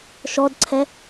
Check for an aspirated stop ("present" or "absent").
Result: present